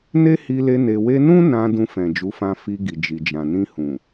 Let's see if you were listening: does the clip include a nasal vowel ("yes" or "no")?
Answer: yes